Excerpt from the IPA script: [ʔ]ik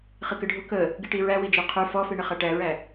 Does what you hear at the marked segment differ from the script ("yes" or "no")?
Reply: yes